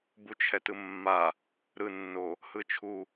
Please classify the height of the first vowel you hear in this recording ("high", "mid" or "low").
high